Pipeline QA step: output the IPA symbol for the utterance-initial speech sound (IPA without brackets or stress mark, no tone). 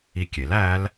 i